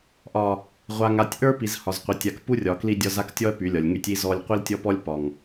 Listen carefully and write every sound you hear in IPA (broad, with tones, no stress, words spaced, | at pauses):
ʔɒ˨ | ʁʷa˨ŋa˨tʲ ʔə˞˦pi˨z hɒ˨zqʷi˨ tʲa˨k pu˦rʲɒ˨ kli˦dʲɒ˦z a˦ktʲɔ˦ɐ̯ py˨˦lʲɒ˨lʲ ŋy˦tʲi˦ zɔ˦lʲ qʷi˦ltʲɔ˦pɔ˦lʲ pɒ˦ŋ